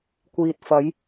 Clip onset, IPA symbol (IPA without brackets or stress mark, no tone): kʷ